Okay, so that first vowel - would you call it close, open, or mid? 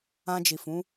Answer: open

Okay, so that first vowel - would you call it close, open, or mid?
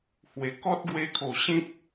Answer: mid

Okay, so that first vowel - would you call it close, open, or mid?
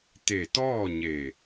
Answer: mid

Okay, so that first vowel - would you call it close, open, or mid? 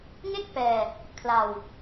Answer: mid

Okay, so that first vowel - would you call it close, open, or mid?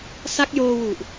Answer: open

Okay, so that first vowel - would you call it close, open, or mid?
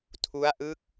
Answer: close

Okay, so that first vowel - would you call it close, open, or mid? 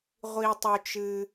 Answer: close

